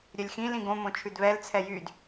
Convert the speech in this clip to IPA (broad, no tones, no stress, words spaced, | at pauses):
ɾʲœlʲxĩlĩ ɡõmõ t͡ʃʰʉdβɛlt͡sʰɛ jyd